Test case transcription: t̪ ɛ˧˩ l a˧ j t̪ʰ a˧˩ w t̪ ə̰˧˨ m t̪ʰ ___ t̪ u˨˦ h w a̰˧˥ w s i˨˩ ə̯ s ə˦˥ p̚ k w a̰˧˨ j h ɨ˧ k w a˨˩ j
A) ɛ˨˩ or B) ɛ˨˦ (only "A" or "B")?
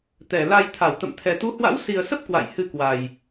A